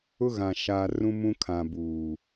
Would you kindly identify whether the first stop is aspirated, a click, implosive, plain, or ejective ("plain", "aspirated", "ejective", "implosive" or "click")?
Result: aspirated